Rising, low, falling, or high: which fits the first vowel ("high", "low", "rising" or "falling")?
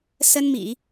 high